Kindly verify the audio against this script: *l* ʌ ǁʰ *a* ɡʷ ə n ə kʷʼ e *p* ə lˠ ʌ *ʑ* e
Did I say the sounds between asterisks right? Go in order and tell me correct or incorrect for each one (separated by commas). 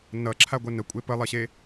incorrect, correct, correct, incorrect